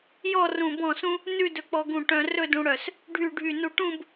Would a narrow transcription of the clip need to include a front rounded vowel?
yes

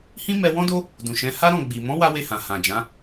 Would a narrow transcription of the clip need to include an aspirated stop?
no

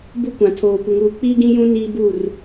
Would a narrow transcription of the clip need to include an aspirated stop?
yes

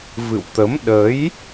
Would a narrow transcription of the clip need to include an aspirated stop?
no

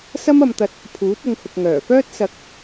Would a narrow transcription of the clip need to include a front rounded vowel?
yes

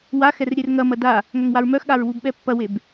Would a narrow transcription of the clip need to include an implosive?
yes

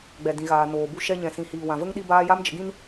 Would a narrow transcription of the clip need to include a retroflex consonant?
no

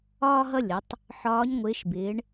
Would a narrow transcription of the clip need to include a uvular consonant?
no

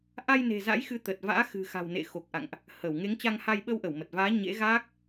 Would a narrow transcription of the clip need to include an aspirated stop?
no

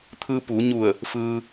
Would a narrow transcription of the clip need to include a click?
no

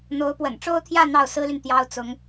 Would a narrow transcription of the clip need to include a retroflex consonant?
yes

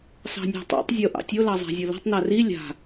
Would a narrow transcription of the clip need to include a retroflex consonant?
no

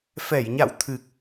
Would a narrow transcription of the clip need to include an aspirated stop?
yes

